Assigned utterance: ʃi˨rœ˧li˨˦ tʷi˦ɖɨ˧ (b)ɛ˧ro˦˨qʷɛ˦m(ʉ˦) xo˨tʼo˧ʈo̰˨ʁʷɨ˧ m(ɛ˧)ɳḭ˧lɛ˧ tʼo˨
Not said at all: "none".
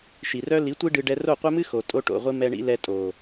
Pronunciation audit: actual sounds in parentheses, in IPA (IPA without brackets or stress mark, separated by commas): ɖ, ɨ˦, ɛ˧